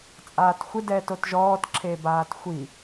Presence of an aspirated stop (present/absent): present